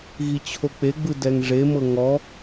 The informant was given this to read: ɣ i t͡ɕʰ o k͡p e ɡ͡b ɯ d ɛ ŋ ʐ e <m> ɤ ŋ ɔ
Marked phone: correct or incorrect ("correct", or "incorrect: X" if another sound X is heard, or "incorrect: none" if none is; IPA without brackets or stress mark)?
correct